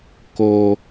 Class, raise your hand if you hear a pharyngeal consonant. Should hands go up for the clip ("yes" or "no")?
no